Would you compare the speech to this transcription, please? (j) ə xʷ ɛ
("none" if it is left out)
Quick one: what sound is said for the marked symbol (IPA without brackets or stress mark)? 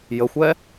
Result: j